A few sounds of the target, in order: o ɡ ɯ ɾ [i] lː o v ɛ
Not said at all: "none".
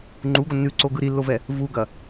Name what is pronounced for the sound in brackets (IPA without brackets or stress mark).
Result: i